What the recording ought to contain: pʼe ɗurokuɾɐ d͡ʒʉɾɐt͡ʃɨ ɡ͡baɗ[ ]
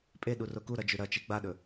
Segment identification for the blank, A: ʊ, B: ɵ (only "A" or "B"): B